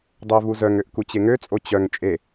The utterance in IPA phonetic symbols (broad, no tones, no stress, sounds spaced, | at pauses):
dˤ œ v u z œ ŋ ø ʔ k u t͡ɕ e ŋ ø t͡sʼ o t͡ɕ œ ŋ t͡ʃʼ e